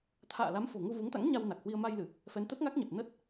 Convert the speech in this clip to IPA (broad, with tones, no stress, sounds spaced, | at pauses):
t̪ʰ a̰ː˧˨ l a˨˦ m f o̤˨˩ ŋ u˧ v u˨˦ ŋ t̪ a̰˧˥ ŋ ɲ a˧ w n a˨˩ k̚ h w i˧ ə̯ m a˧ j l ɨ˧˩˨ | f ɛ˨˦ n t̪ ə˦˥ t̚ ŋ a˦˥ k̚ ɲ ɛ˨˩ p̚ n ə˦˥ t̚